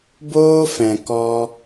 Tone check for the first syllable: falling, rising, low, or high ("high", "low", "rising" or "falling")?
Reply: high